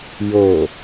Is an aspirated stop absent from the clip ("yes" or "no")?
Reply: yes